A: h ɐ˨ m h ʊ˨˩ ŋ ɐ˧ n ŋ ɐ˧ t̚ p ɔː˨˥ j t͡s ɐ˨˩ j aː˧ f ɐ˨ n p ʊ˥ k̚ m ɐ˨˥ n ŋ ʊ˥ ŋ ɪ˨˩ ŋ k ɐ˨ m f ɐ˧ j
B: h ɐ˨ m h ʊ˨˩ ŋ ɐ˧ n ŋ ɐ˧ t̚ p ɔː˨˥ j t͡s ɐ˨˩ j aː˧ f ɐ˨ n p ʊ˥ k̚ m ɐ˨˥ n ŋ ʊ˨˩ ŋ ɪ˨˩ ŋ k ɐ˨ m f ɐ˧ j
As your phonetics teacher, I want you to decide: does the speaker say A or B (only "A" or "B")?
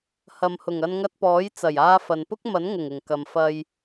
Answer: B